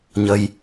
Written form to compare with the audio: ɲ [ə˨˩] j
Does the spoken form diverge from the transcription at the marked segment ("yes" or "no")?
yes